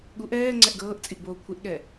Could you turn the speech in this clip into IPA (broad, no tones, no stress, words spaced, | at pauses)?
ɠuʔ ɛː ŋ͡ǀɛʔɡɤːʔt͡sʼiʔ boːkʷʰɪʔɠɛ